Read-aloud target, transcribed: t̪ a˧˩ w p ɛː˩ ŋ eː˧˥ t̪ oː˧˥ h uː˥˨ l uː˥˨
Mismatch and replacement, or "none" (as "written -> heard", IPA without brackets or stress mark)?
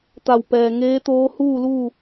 none